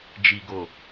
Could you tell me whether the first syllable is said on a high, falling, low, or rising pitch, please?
low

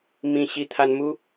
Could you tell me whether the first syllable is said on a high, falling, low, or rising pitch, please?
low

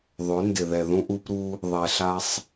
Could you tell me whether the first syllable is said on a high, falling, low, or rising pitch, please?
rising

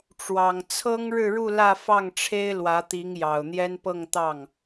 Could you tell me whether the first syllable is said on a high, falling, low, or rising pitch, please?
low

